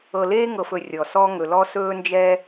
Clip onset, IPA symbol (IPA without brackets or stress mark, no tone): ɤ